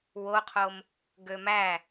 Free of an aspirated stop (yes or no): no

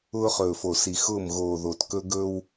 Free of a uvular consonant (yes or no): no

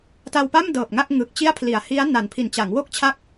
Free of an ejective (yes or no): yes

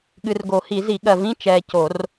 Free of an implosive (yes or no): no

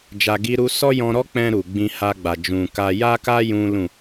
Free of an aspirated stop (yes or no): yes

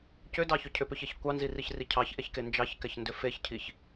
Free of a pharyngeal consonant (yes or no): yes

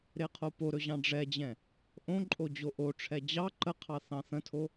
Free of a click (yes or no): no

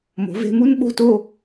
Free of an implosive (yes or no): no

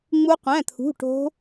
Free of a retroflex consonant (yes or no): no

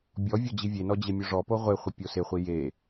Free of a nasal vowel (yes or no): yes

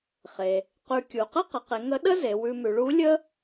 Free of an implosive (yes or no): no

